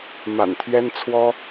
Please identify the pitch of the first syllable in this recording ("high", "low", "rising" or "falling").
low